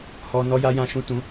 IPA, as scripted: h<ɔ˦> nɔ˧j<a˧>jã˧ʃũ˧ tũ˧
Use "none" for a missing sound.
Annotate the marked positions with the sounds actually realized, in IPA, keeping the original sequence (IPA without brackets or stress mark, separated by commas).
ɔ˦, a˧